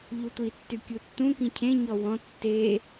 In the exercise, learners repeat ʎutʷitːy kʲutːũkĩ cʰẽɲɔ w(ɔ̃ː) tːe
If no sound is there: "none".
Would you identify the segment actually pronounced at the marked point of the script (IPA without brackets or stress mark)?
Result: ɔ̃